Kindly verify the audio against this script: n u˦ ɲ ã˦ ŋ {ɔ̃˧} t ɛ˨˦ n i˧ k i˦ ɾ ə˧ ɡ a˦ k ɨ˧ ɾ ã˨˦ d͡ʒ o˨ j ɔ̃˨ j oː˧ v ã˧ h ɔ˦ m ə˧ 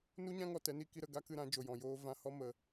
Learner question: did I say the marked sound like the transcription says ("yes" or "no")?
no